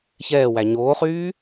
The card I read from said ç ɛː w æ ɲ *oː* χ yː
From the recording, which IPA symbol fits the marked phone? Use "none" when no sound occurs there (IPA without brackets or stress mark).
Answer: oː